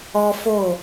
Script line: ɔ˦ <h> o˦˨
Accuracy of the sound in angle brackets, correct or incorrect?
incorrect: f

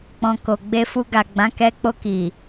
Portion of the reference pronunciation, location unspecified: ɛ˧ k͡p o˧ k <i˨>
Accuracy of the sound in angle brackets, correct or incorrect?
correct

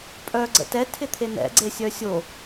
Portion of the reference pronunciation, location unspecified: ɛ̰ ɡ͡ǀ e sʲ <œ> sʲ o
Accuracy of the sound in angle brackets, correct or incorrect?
correct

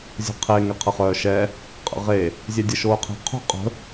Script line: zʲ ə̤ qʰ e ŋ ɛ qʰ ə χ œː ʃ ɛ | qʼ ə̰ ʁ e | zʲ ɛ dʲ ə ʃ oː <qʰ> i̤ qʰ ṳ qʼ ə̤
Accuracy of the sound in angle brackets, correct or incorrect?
correct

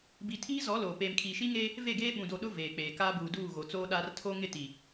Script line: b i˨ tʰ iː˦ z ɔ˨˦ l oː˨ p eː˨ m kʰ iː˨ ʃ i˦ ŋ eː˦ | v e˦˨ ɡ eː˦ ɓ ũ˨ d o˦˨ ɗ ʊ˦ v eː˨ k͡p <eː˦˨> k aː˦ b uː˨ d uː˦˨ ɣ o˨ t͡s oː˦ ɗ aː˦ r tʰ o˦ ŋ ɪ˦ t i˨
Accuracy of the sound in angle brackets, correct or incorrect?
incorrect: eː˨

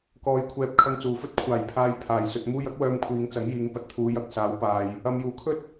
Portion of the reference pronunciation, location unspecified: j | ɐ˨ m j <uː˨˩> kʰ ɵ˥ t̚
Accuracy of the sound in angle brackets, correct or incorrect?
correct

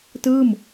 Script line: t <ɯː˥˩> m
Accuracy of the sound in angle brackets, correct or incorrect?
correct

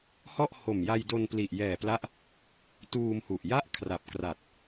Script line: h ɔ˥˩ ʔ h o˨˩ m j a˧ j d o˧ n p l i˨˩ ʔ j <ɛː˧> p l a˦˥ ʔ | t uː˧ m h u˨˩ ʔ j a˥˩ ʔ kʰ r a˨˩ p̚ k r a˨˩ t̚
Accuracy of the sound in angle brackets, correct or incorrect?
incorrect: ɛː˨˩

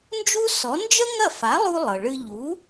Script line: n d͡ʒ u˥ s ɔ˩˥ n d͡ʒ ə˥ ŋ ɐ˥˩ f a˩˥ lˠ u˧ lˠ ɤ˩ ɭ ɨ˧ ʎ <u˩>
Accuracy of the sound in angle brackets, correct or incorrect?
incorrect: u˩˥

